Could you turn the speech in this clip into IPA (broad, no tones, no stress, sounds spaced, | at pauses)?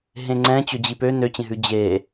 ɦ ẽ ŋ͡ǀ ɛ̃ t͡ɕ ɵ d͡ʑ i p ø n ø t͡ɕ ẽ ɦ ʉ d͡ʑ e